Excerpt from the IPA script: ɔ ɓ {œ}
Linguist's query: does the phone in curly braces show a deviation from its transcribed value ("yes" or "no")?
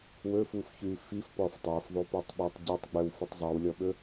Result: yes